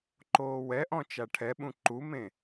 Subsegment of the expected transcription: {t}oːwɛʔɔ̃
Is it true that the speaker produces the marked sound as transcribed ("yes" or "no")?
no